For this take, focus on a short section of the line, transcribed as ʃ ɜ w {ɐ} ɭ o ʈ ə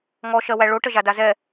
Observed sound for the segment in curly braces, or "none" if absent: æ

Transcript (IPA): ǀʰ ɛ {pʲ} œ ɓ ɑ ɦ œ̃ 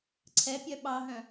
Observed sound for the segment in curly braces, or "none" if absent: pʲ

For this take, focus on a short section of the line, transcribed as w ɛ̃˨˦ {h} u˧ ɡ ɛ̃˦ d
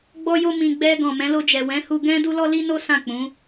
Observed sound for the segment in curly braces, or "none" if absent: h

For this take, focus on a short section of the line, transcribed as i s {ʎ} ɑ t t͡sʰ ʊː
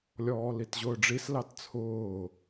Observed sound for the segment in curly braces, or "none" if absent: l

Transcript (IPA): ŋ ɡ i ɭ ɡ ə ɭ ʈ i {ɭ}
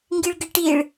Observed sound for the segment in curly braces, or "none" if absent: ɭ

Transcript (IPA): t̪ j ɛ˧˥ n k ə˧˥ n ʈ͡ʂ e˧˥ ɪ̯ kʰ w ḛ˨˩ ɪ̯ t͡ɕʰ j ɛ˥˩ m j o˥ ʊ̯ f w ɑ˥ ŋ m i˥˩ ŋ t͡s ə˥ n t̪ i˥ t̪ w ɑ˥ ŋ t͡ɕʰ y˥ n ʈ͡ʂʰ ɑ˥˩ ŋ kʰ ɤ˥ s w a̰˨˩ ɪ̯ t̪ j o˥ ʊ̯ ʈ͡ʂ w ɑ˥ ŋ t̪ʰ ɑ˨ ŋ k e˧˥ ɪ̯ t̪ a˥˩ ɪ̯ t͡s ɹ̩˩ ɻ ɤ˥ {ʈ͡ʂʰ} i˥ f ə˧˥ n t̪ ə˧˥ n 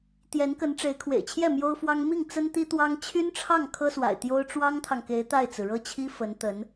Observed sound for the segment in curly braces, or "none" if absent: t͡ɕʰ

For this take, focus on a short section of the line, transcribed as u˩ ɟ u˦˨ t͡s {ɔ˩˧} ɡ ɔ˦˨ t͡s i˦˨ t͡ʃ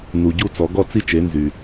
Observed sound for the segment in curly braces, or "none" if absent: ɔ˩˧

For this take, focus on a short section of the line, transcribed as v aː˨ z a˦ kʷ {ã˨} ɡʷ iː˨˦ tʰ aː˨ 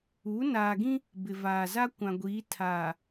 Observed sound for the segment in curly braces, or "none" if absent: ã˨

